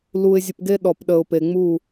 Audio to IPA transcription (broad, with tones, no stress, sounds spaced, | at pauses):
l u˧ ɪ̯ zʲ ə˨ p ɡ e˧ ɗ ɔ˨ p ɗ ə˨ ʊ̯ p e˨ ŋ͡m u˦˨